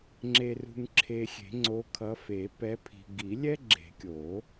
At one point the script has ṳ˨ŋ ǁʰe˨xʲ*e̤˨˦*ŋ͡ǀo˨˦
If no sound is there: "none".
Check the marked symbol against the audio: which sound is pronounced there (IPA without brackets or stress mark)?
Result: e̤˨˩˦